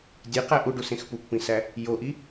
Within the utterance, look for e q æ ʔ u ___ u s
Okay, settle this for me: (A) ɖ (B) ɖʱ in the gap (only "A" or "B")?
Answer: A